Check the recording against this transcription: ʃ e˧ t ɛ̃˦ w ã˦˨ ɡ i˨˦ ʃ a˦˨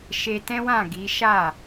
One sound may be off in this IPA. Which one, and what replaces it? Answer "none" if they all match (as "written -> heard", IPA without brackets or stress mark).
none